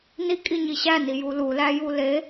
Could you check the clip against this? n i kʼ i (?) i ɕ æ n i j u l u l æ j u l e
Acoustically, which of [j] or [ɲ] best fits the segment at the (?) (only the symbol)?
ɲ